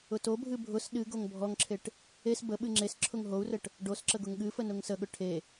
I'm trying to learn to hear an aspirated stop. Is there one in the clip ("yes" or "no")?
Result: yes